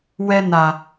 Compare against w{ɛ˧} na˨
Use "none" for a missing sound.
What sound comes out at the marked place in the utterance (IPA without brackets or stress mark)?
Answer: ɛ˧